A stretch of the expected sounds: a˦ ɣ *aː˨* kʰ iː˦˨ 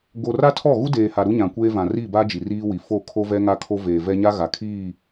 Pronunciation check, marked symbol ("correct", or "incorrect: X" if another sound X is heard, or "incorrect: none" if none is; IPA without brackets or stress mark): incorrect: a˨